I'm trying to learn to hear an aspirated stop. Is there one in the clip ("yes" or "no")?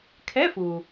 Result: yes